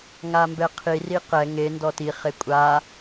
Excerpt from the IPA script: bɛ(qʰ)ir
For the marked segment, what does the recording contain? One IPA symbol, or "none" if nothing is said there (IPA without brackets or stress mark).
qʰ